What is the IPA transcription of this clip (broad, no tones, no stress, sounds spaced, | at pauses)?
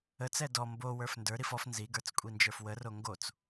ə t͡s ɛ d ɔ m b o w ə˞ f n d ə˞ ɾ i f ɔ f n z i ɡ ə˞ t͡s kʷʼ i n d͡ʒ ə˞ f w ə r o ŋ ɡ o t͡s